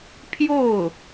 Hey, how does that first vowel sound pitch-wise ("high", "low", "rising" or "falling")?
falling